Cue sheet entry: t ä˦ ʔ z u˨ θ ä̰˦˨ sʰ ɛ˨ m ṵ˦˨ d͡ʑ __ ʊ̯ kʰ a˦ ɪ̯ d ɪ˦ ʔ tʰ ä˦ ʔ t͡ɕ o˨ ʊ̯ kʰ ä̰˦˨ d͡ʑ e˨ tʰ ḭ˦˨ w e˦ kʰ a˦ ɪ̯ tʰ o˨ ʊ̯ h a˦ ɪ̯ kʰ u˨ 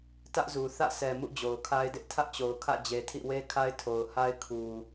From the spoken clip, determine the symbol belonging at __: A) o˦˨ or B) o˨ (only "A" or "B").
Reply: B